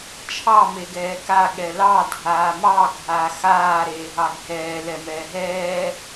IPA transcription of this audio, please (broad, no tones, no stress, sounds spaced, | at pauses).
t͡ʃʰ ɑ m e ɡ ɛː k a ɠ ɛ l ɑ dʱ aː m ɑ ɡʱ aː x aː ɾ eː ɦ ɑ ɡʱ ɛː l ɛ m ɛː ɦ ɛː